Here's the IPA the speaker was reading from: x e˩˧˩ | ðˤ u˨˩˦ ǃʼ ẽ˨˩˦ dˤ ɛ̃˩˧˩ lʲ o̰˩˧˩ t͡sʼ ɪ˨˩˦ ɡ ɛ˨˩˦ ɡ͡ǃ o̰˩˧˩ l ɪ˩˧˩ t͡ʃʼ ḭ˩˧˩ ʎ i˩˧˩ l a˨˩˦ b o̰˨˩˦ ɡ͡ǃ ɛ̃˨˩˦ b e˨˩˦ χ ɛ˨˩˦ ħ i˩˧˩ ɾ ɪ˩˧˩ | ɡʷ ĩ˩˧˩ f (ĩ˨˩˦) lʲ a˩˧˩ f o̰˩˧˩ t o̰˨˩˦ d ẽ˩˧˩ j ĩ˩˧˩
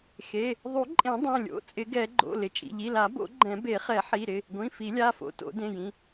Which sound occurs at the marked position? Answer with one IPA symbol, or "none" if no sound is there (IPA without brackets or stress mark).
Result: i˨˩˦